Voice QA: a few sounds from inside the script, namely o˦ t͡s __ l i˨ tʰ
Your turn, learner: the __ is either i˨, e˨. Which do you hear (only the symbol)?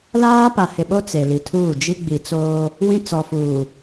e˨